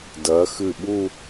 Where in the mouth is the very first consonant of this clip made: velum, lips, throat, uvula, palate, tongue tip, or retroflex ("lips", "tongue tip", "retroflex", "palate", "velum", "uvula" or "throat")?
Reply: tongue tip